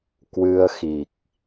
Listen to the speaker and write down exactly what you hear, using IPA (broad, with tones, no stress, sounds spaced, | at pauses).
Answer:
k w ɨ˧ ə̯ x i˨˩ k̚